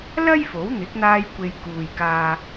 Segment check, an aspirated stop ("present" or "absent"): absent